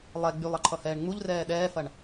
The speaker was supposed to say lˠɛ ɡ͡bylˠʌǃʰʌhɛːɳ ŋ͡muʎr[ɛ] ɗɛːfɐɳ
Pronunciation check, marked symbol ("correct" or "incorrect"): incorrect